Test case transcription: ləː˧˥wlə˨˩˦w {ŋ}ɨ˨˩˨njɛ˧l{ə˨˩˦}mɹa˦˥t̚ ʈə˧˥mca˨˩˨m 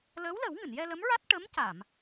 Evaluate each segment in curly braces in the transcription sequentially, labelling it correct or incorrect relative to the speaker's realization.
correct, incorrect: ə˧˥

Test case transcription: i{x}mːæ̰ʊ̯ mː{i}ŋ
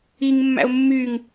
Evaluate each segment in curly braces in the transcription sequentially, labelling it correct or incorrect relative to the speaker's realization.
incorrect: ŋ, incorrect: y

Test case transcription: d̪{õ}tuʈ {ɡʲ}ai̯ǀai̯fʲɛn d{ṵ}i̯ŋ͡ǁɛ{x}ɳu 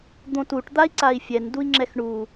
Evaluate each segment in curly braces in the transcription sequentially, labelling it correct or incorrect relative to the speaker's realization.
correct, incorrect: d̪, incorrect: u, correct

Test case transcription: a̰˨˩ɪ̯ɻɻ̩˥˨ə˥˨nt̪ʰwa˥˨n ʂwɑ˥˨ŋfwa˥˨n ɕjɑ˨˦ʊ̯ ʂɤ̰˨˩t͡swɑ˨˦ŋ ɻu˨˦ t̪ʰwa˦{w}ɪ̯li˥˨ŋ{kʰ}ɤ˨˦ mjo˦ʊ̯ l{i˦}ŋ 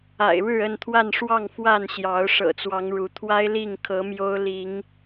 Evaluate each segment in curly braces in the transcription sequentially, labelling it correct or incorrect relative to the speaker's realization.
incorrect: none, correct, incorrect: i˨˦

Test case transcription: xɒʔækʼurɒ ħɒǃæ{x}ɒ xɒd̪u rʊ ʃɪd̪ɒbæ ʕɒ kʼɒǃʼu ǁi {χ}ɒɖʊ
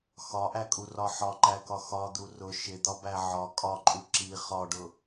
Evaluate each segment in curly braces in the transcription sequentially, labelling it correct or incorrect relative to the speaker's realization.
incorrect: k, correct

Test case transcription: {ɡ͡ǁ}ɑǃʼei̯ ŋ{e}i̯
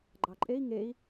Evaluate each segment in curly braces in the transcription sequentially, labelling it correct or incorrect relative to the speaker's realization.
incorrect: ɡ͡ǃ, correct

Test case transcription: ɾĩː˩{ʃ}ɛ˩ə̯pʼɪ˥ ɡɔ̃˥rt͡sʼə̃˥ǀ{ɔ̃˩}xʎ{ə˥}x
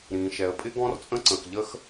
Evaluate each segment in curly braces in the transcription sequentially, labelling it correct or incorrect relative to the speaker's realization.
correct, incorrect: ə̃˩, correct

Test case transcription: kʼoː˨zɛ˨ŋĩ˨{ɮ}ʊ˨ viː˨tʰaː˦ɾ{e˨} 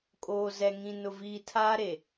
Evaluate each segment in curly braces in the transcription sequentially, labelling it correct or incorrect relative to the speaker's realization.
incorrect: n, correct

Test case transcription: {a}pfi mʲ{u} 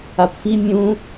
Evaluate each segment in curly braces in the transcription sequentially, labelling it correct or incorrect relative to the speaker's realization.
correct, incorrect: ũ

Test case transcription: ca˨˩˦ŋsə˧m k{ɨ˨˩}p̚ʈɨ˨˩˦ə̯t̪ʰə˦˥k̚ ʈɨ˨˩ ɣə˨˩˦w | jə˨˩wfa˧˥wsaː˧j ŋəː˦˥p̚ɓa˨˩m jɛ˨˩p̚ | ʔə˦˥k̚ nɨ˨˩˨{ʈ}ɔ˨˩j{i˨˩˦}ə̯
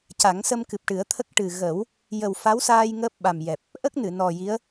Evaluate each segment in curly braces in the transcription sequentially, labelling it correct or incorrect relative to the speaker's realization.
correct, incorrect: n, incorrect: i˧˥

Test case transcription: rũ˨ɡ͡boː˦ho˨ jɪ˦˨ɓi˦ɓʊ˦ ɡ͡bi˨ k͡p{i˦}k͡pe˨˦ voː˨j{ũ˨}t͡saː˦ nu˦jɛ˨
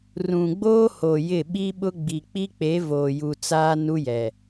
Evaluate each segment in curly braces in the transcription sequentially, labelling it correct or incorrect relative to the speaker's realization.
correct, incorrect: u˨

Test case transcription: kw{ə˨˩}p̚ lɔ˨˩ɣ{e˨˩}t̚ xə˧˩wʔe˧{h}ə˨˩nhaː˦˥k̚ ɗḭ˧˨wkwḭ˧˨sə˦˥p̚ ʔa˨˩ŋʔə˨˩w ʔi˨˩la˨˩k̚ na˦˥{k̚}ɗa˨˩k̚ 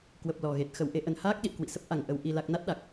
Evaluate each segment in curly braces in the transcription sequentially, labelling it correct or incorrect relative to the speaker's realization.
correct, correct, incorrect: ʔ, incorrect: t̚

